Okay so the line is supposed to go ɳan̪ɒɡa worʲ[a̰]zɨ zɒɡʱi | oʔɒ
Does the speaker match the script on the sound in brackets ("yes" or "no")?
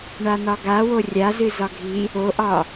no